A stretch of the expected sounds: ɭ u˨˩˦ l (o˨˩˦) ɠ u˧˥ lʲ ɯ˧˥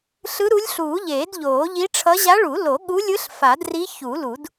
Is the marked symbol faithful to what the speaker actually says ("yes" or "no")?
yes